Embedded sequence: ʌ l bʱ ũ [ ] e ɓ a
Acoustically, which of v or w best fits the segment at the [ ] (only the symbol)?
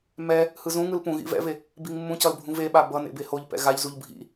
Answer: v